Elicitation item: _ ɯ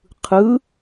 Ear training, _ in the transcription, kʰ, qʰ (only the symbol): qʰ